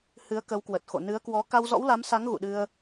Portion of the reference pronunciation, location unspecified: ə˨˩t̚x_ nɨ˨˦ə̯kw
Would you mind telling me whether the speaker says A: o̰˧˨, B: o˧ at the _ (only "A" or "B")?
A